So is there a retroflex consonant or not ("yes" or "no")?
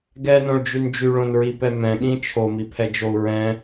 yes